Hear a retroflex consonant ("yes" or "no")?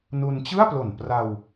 no